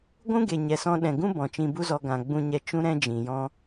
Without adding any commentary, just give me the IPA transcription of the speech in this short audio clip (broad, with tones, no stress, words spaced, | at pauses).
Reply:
ɡʷũ˦ɡe˨ɲɛ˨sɔ̃˧ ɗɛ̃˨ɡũ˦ bɔ̃˨t͡ʃĩ˧bu˦zɔ˧ ɡã˨ ɡ͡bũ˦ɲɛ˦ t͡ʃũ˦ɾɛ̃˦d͡ʒĩ˨jɔ̃˦